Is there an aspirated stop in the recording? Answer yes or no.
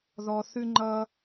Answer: no